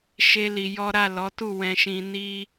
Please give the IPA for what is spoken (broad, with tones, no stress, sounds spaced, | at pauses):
ʃ e˦ l i˧ j ɔ˦ ɾ a˦˨ l ɔ˨˦ t u˦˨ w ɛ̃˧ ʃ ĩ˧ n i˧